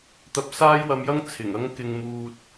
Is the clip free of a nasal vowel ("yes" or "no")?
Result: yes